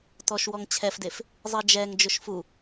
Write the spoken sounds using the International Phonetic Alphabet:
t ɔ ʃ w ɔ ŋ t͡ɕʰ ɛ f d e f | zˤ i d͡ʒ ɛ ŋ d͡ʒ ʊ ʃ f u

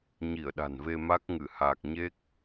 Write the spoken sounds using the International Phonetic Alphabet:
ɲ i˧˩ ə̯ ɗ a̤˨˩ n v e˧ m a˦˥ k̚ ŋ ɨ˧˩ h aː˨˩ k̚ ɲ e˦˥ k̚

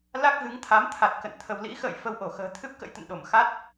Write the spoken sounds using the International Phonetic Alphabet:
l a˦˥ k̚ ɣ ɨ˨˦ ŋ t̪ʰ a˨˦ m t̪ʰ a˨˩ t̚ k ə̰˧˨ n t̪ʰ ə˧ w l ḭ˧˥ x ə̰ː˧˨ j f ə˧ w ʔ o˧˩ x ə̤ː˨˩ t̪ʰ ɨ˦˥ p̚ k ə̰˧˥ j t̪ ə̰˧˨ n ɗ o˧˩ m x a˦˥ t̚

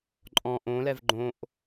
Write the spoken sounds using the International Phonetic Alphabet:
ǃʼ ɔ̃ ʔ õ l ɛ v ɡ͡ǃ õ ʔ

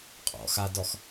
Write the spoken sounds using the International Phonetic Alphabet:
qʼ ɔ̰ x a d ɔ x

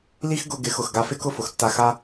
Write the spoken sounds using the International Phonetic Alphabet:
l i˦ x ɡ ʊ˧ ɡ ɪ˨˦ x ʊ˨ x ɡ a˧ f ɪ˦ k ʊ˦ f ʊ˨ x tː a˧ x a˦

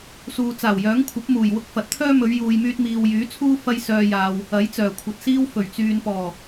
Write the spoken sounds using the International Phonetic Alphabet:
s uː˨ t͡s aː˨˩ w j œː˨˥ ŋ kʷʰ ɐ˨˥ p̚ m uː˨˩ j w ʊ˧ k̚ f ɐ˨ t̚ t̪ʰ œː˥ m ɵ˨˧ ɥ j uː˨ j m yː˧ t̚ m iː˨ w j yː˨˥ t͡sʰ uː˥ f ɐ˥ j s œː˧ j aː˨ w | ɐ˨˥ j t͡s œː˨˩ kʷʰ ɐ˨ t̚ s iː˥ w f ɵ˨˩ ɥ t͡s yː˨ n p ɔː˨˩

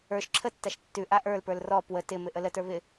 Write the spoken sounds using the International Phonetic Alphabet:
ə˞ ʃ ǁʰ ə tː a ʃ tː ʉ ʔ a ʔ ə˞ l p ə˞ l r ɔ p w ə t ɪ m ɪ ʔ ə l ə t ə˞ β ɪ

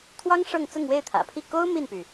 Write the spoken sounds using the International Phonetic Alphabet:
t̪ʰ w ɑ˥ ŋ ʂ ɤ˥˧ ŋ t͡s ʊ˥˧ ŋ w e˥˩ ɪ̯ t̪ʰ ä̰˨˩ pʰ i˥˩ k o˥ ʊ̯ m i˥˩ n p y˩

